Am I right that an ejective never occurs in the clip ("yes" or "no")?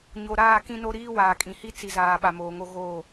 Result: no